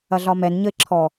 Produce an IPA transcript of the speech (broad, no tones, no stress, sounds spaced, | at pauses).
ɐ ɮ ɒ m ɛ n ɲ ə ɪ̯ ǁʰ ɔ